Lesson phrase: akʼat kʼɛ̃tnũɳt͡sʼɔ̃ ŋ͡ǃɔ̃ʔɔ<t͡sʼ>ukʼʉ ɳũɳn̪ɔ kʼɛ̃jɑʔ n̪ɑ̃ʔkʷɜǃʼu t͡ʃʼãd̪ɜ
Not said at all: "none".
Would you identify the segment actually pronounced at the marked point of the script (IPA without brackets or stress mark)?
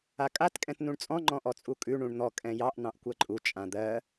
t͡sʼ